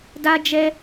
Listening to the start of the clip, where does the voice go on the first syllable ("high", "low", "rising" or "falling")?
high